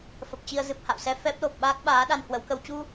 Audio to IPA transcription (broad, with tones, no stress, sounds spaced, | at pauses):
f ə˨˩ p̚ t͡ɕ i˧ ə̯ z ɨ˨˩ p̚ h a̰˧˨ w s ɛ˧ f ɛ˦˥ p̚ l o˨˩ p̚ ɓ aː˦˥ k̚ ɓ aː˨˦ ɗ a˧ n h w ə˨˦ w k ə˧ w t͡ɕ u˧